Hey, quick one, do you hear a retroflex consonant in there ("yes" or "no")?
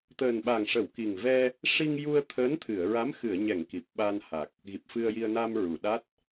yes